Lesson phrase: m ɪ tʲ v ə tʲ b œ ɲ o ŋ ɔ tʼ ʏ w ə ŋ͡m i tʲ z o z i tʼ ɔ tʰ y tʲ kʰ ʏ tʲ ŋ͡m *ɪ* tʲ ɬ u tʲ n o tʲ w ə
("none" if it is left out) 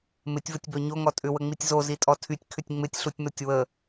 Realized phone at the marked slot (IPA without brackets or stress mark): ɪ